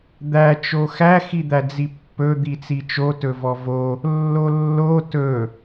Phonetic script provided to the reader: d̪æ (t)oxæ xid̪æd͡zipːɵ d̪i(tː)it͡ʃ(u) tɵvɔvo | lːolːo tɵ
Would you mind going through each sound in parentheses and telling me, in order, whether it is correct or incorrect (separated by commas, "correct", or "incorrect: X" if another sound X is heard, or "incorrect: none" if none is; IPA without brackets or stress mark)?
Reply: incorrect: t͡ʃ, incorrect: t͡s, incorrect: o